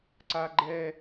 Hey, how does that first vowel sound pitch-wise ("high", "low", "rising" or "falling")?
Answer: high